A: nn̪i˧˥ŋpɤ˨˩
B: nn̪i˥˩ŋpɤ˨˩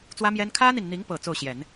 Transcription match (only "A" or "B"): A